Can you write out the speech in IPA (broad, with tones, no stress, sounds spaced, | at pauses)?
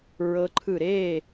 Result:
ɹ ɤ˦˥ ǃʰ ɯ˥˨ ɾ e˥˨